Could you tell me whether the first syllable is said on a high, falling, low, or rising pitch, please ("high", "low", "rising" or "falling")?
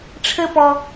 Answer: high